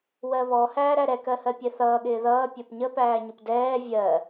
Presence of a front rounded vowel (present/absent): absent